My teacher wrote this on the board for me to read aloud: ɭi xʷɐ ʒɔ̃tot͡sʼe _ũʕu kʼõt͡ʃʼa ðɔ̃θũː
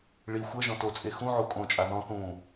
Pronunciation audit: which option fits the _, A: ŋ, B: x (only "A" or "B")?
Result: B